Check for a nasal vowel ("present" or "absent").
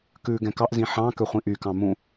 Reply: present